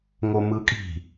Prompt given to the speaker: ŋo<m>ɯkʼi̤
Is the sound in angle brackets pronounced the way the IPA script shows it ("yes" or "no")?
yes